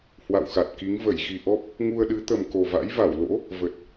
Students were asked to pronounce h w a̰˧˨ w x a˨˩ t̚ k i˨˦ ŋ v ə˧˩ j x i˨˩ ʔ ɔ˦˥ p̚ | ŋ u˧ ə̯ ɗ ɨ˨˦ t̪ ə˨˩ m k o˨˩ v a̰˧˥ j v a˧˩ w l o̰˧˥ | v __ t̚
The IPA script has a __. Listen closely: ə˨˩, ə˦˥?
ə˨˩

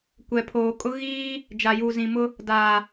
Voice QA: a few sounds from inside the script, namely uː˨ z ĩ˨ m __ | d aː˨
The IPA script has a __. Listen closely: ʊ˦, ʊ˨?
ʊ˦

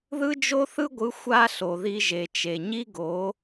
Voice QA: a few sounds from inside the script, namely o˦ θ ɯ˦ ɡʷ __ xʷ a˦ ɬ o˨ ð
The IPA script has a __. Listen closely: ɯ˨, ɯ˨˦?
ɯ˨˦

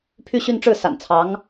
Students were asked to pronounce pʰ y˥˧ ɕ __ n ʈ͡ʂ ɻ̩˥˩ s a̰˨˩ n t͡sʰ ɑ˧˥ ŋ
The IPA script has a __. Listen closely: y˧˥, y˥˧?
y˥˧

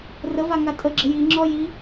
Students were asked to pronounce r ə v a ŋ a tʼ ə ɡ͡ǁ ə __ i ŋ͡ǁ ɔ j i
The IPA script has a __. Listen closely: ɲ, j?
j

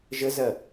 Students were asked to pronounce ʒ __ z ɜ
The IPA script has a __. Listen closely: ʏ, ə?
ə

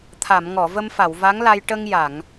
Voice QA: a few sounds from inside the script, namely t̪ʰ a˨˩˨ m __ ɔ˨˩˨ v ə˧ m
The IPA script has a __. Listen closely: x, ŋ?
ŋ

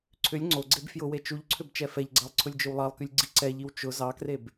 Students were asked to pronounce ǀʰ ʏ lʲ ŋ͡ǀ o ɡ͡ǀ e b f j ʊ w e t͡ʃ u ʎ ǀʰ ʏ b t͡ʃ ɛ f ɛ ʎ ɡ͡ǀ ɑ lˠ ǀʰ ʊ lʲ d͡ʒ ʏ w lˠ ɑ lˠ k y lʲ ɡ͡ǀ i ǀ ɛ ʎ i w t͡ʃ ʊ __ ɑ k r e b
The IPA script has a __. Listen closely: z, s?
z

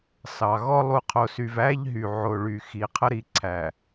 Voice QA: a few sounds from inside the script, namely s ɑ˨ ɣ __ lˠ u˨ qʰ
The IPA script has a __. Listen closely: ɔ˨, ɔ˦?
ɔ˦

